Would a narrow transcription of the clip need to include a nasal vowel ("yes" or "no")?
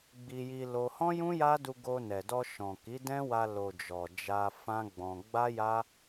yes